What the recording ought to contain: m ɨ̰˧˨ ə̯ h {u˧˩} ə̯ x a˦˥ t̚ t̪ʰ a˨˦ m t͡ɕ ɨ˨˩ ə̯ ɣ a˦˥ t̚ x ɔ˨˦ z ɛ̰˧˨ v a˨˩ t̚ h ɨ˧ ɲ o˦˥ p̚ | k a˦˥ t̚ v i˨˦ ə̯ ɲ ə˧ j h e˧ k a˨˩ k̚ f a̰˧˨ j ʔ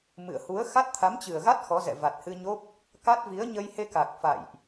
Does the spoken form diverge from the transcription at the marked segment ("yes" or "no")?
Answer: yes